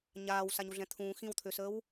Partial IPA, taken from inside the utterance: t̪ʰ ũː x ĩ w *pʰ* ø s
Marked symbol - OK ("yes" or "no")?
no